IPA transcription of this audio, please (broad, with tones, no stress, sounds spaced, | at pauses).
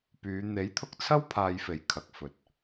p yː˨˧ n̪ e˨˥ j t̪ʰ ʊ˧ k̚ t͡sʰ ɐ˥ w pʰ aː˧ j f e˨˩ j kʰ ɐ˨ k̚ f ɵ˨ t̚